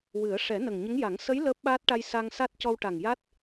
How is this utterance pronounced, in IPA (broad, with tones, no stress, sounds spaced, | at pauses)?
w ɨ˨˩˦ ə̯ ʂ ɛ˨˩˦ n ə˨˩ ŋ ɲ ə˧˥ ŋ j a˨˩˦ ŋ s ə˧˥ j l əː˦˥ p̚ ɓ aː˦˥ t̚ ʈ a˧ j s a˧ ŋ s a˦˥ t̚ c ɔ˧ w ʈ a˨˩ ŋ j a˦˥ t̚